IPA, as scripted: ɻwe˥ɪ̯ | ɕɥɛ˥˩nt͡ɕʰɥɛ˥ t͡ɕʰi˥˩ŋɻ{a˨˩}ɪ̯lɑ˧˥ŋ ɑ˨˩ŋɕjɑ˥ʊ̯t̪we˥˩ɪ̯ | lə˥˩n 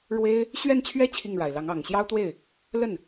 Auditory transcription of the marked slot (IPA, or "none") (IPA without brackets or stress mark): a˨˩